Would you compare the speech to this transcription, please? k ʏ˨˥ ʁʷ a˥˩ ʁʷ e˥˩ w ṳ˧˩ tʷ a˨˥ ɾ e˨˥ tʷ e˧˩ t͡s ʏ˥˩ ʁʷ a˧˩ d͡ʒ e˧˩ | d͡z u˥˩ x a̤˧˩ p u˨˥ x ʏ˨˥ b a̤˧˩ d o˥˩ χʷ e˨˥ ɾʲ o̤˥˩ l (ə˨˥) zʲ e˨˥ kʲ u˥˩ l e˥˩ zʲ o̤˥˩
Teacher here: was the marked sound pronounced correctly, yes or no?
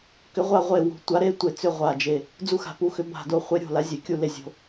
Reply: no